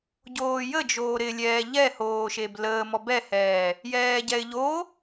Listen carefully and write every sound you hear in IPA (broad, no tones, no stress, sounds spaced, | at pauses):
ɟ oː j ə d͡ʒ oː ɾ ɪ lʲ ɛː ʎ ɛ h oː ʃ e b l əː m ɔ b ɛ h ɛː | j ɛː ɟ ɛ ɪ̯ ʎ o